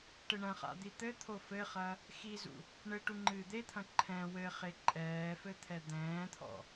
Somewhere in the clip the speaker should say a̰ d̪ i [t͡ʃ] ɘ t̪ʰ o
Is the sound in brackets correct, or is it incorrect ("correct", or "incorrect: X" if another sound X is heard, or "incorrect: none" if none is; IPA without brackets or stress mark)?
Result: incorrect: t̪